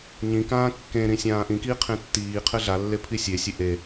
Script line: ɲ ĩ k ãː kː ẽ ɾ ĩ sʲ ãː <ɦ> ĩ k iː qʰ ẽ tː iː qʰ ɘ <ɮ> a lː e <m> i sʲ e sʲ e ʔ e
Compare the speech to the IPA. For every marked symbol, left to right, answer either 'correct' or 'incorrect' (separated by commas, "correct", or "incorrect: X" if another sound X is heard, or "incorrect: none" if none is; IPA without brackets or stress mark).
incorrect: ʔ, correct, incorrect: pʰ